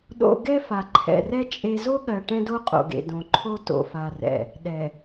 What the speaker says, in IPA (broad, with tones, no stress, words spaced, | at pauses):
ɗo̰˦ ɡɛ˦fa˨ǃʰɛ̰˨rɛ˦ t͡ʃʼe˦ zo˦ɠɜ˨ ʈɛ̃˦do˦qʼo̰˨ɡḛ˨ dõ˨ǃʰo˦ to̰˨fa˨rɛ̰˨ | ɗɛ˨